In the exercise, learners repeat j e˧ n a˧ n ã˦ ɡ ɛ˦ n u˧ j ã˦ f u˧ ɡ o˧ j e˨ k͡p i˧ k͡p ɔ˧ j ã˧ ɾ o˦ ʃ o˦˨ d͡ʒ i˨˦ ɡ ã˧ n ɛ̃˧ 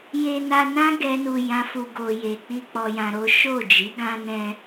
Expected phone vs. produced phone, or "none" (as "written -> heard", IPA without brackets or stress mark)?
none